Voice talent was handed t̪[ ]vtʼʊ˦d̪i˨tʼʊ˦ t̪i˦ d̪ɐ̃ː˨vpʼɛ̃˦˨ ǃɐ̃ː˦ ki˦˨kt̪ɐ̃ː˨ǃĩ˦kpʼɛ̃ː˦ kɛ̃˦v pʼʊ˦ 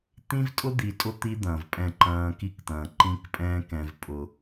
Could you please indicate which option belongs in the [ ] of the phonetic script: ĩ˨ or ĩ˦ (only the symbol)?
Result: ĩ˦